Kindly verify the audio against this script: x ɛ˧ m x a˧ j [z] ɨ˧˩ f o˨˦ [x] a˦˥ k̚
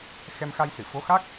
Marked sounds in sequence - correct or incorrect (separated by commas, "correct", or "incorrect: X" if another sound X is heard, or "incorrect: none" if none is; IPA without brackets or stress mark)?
incorrect: s, correct